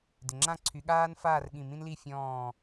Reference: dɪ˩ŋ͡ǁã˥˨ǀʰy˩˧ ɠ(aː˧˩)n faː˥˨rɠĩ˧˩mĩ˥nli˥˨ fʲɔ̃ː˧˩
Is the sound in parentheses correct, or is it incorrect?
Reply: incorrect: aː˥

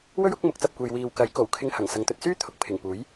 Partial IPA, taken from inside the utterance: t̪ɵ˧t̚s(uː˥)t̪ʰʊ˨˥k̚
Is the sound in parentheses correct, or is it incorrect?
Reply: incorrect: yː˥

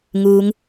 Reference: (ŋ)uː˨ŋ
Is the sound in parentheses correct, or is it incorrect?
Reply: correct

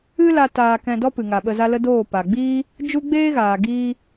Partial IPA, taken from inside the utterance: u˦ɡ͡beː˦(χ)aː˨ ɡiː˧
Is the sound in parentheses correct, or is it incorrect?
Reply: incorrect: ɣ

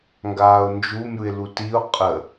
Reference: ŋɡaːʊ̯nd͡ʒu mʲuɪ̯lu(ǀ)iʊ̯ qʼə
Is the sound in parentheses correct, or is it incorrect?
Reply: incorrect: t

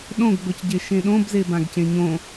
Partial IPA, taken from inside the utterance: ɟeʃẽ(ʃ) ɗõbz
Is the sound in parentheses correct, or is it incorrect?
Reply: incorrect: none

